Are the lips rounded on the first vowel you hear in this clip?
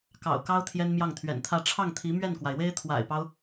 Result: no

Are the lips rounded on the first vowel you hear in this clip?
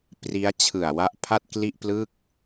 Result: no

